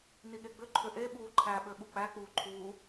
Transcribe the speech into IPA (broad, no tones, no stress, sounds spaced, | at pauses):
n i ɠ e ɡ͡b ʏ ǃʰ ʏ ʔ e ɓ uː ǃʰ æ ɓ ø ɓ u k͡p æ k͡p uː ǃʰ uː